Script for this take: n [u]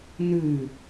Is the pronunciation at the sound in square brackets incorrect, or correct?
incorrect